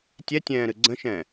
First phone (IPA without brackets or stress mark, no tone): tʲ